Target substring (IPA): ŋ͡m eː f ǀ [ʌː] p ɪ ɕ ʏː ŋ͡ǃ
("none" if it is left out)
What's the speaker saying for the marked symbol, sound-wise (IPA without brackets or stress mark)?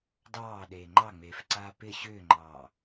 aː